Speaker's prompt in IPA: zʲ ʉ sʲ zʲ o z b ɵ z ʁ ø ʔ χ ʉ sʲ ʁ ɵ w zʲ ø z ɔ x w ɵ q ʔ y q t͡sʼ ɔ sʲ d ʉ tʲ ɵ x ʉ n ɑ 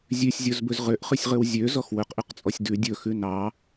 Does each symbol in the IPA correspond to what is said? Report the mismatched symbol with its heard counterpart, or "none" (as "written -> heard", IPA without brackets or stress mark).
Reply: tʲ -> dʲ